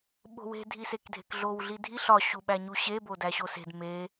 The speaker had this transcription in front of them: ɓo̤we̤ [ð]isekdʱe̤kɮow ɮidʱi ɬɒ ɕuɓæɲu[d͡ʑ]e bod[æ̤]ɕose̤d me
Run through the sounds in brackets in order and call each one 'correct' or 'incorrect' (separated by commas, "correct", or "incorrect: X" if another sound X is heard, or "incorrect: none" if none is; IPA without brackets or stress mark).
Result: incorrect: dʱ, incorrect: ɕ, incorrect: æ